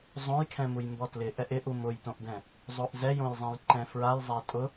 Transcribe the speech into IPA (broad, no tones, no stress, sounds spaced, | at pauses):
zˤ õ j kʰ ɛ̃ m u j m b ɔ t l ɪ ʔ ɛ ʔ ɪ ʔ u m ʊ j t õ ʔ d ɛ̃ | zˤ o ʔ z ɛ j õ j zˤ ɛ̃ j ǃ ɛ̃ f ɹ a j zˤ a tʼ ʊ